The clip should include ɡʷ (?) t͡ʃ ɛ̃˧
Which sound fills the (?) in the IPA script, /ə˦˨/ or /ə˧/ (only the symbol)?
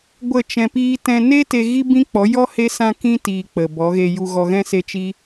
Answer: ə˦˨